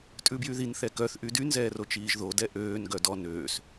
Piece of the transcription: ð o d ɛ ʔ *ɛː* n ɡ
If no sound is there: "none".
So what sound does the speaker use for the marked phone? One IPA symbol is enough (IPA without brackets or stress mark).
øː